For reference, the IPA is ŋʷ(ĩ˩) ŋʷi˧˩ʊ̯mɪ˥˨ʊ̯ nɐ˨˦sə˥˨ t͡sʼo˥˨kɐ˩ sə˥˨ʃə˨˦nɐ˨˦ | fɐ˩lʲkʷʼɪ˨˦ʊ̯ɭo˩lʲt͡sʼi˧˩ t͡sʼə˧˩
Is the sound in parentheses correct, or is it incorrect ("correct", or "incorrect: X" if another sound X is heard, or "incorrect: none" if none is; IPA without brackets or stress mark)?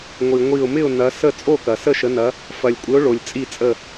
incorrect: i˩